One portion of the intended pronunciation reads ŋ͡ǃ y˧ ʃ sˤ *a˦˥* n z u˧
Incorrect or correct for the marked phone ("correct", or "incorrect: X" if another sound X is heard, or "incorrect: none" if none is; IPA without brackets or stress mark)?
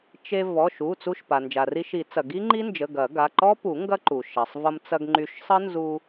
incorrect: ə˦˥